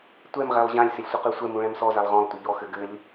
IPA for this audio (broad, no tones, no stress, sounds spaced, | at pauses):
tʷ ɛ m ʁ ɛ lˠ ʑ ã lʲ s ɪ lʲ sʷ ɘ q ʉ sʷ ɛ m ũ ɭ ɛ̃ m s ɔ z a lˠ ʁ ɔ̃ lˠ tʷ ɪ ʎ ɔ x ɘ ɡ ɘ lʲ